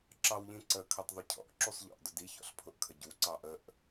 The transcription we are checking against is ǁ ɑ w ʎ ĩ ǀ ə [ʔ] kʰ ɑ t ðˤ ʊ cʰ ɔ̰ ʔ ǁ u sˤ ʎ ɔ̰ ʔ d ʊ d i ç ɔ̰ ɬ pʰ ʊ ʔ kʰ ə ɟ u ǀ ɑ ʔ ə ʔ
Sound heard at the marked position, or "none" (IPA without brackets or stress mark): none